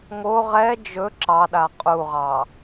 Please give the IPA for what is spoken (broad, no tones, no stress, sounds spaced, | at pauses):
ŋ o ʁ ɛ d͡ʒ ɵ ǁ ɑ ɗ a qʼ u ʁ ɑ